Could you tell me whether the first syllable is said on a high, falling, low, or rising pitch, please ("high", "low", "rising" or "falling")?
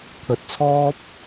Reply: rising